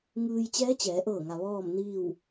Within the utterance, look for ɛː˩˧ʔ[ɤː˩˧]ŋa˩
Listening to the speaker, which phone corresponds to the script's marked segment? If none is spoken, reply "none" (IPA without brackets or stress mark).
ɤː˧˩